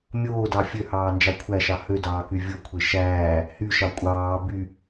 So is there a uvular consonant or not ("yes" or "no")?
no